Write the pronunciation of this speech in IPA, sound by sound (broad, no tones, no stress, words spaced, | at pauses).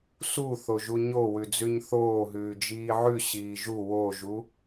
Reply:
su θoʒuɲowʉ d͡zʉɲθoːɦʉː d͡ʒiːʕʉ ɕiːʒu woʒu